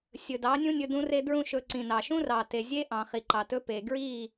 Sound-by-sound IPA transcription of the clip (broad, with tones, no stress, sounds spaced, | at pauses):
sʲ ɵ˨ d ɑ˨˦ nʲ ũ˦ nʲ ɵ˧ d ũ˦ r e˦ d ɹ ũ˦ ʃ ɵ˨ ǀ ĩ˨ n ɑ˨ ʃ ũ˦ r ɑ˨ t e˨ zʲ e˦ ʔ ɑ̃˨ χ i˨ ǃ ɑ˨ t ɵ˦ p e˨ ɡ ɹ i˦˨